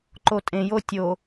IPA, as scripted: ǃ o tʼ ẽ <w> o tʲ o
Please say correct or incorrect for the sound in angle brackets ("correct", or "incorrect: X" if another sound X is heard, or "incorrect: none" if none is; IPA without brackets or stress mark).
incorrect: j